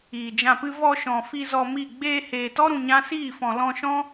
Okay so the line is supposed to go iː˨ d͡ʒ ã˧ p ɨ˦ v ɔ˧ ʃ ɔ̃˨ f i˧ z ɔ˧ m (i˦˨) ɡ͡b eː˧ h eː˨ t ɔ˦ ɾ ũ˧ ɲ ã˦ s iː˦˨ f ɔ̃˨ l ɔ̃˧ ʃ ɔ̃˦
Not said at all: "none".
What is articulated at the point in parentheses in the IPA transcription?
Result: i˦˨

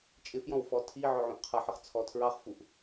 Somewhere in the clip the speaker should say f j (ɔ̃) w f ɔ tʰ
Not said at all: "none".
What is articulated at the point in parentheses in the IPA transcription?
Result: ɔ̃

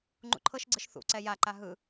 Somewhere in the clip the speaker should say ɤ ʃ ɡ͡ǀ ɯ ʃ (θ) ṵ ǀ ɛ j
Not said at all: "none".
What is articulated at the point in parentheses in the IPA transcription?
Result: θ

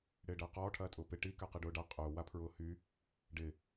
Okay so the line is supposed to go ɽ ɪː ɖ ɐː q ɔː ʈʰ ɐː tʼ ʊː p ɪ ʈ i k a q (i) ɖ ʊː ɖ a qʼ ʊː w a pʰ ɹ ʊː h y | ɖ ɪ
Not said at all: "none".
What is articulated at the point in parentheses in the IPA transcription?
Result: i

